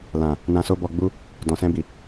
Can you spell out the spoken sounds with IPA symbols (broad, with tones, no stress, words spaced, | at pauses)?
lã˨ | nã˧so˦bɔ˧ɡ͡bu˦ | dɔ̃˨sɛ̃˧bi˨